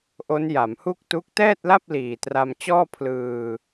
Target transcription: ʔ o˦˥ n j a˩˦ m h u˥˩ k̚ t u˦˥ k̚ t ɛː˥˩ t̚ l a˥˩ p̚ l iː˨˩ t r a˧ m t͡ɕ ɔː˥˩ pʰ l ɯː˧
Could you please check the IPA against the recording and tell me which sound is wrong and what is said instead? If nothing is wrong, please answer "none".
none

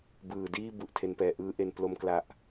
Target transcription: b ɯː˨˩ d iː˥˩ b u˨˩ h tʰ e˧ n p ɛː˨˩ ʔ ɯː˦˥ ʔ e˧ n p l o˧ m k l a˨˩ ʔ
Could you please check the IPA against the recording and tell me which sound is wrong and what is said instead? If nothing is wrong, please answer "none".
h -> ʔ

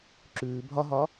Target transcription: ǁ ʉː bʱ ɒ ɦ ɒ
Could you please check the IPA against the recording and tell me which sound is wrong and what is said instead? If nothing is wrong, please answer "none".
none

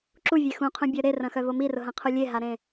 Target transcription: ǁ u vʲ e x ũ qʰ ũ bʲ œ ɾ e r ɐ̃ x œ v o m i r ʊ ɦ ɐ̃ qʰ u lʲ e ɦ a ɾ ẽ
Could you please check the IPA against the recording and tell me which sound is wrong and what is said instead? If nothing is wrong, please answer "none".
none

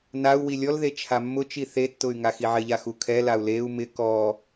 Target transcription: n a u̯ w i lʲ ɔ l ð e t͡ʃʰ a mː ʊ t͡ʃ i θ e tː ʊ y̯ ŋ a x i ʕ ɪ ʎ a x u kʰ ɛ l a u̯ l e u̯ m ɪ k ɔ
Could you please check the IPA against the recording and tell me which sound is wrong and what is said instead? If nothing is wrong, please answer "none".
none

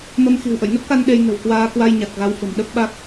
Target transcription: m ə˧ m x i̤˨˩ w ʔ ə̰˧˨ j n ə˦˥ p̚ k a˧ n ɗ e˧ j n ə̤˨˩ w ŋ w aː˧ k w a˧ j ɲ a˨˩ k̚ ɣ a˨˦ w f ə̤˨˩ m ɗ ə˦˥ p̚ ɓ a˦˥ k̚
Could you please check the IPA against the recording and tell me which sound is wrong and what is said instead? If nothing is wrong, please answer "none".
ŋ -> k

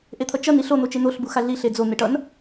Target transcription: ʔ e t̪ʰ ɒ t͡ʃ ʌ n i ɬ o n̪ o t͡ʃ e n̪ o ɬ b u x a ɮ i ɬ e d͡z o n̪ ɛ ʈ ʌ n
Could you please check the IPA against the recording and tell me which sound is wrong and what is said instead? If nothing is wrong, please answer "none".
ɒ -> ʌ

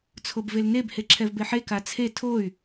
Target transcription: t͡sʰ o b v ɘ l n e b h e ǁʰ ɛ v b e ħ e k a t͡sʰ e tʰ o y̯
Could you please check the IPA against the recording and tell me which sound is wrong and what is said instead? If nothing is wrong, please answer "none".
ɘ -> e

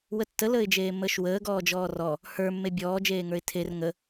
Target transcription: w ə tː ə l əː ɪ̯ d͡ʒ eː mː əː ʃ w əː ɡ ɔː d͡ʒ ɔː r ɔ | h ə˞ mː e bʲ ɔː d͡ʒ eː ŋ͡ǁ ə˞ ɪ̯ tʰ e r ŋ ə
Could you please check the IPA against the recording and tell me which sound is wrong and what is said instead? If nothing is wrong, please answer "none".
ŋ͡ǁ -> ŋ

